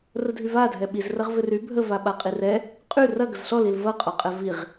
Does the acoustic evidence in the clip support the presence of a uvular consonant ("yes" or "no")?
yes